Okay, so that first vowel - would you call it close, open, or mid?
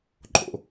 mid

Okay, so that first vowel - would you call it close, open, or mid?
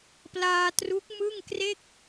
open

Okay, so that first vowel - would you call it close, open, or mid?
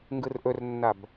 close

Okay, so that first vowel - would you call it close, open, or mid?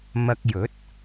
open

